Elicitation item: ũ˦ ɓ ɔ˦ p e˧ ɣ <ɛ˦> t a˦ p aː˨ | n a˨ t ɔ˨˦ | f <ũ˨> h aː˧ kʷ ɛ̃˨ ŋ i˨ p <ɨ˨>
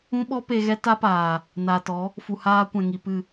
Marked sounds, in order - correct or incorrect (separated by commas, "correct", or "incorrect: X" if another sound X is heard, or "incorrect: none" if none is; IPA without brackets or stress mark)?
correct, incorrect: u˨, correct